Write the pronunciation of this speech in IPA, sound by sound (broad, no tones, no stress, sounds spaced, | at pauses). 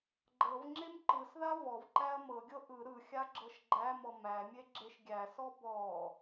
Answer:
ɡ͡ǃ ɤ v ŋ͡ǁ e m ǃ ɯ s ð a v ɔ v ǃ æ ɐ̯ m ɤ ɡʲ ɤ ʔ ɯ ɾ ɯ xʲ a ɡ͡ǁ ɤ ʃ ɡ͡ǃ æ m ɔ m æ mʲ e ɡ͡ǁ e ʃ ɡʲ æ s ɔ b ɔ